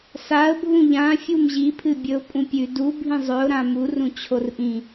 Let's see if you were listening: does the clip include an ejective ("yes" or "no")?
yes